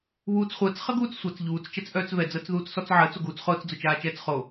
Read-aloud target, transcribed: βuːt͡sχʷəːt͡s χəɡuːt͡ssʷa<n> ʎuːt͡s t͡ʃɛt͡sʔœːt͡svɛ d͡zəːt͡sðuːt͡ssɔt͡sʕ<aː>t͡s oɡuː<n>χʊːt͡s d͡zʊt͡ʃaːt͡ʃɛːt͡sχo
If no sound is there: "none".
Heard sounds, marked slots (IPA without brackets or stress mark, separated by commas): t͡s, əː, t͡s